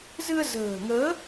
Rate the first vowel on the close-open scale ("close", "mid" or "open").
close